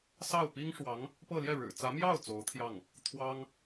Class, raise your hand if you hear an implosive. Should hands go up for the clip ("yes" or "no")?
no